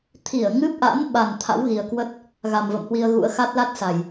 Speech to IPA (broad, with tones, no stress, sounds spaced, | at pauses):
t̪ʰ i˧˩ ə̯ ŋ ɨ˦˥ p̚ ʔ a̰˧˥ n ɓ a˨˩ n t̪ʰ a̰˧˥ w ɣ i˨˩ ə̯ k w ə˦˥ t̚ | ɣ a˨˩ m v ə̰˧˨ m h w i˧ ə̯ ɣ ṵ˧˥ ə̯ x a˦˥ t̚ l a˦˥ t̚ s a˨˩ j